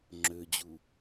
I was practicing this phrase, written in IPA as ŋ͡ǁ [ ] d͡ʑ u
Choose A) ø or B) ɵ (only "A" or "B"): A